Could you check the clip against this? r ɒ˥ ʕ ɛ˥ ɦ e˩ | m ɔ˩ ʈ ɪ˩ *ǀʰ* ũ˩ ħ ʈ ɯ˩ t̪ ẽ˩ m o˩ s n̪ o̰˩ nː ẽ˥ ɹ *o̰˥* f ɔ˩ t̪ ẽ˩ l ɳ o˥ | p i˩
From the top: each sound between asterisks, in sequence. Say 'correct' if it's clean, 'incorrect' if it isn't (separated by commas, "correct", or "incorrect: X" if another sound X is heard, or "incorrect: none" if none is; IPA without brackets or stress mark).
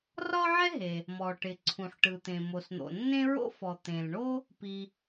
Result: correct, correct